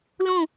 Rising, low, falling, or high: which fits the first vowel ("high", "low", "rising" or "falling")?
falling